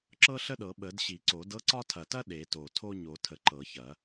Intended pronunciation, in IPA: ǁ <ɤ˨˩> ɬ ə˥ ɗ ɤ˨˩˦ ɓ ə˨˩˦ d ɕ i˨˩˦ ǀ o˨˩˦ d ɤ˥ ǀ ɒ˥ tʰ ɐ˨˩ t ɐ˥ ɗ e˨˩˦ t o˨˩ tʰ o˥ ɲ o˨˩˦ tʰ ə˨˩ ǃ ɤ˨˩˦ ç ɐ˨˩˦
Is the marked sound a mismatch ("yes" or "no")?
yes